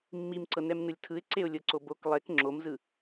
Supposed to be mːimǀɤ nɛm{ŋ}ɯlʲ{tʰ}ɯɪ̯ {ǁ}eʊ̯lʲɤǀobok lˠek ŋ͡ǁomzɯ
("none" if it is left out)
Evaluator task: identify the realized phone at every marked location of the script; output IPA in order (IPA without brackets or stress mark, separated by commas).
n, tʰ, ǀ